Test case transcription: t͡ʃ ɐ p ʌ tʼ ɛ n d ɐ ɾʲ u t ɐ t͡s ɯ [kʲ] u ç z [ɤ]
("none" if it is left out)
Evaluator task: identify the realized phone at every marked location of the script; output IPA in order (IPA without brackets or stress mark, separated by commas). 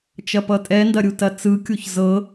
kʲ, ɤ